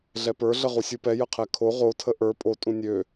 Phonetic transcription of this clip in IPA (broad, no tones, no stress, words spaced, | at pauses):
ɮɛpə˞ ɮəʁusʲupɛ jəqʰɛkʰo ʁotʰə ʔə˞ pʼo tʼũnʲø